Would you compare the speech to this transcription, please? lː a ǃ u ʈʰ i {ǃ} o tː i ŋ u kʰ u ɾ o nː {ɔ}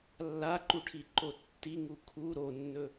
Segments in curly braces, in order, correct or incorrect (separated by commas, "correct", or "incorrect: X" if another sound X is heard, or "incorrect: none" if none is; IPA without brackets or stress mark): correct, incorrect: ɵ